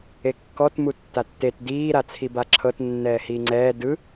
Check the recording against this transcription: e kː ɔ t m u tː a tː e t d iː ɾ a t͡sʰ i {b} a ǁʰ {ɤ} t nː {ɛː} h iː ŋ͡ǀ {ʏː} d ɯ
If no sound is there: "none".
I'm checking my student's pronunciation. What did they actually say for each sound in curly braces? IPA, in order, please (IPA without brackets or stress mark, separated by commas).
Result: b, ɤ, ɛː, ɛː